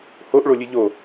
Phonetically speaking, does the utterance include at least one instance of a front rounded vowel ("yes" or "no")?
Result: no